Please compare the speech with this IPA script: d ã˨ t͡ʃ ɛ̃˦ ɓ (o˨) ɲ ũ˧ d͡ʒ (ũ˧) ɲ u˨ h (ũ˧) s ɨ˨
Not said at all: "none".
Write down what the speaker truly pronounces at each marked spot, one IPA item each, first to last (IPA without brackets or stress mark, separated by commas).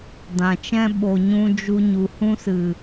o˨, u˧, ũ˦